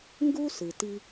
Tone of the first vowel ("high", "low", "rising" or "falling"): high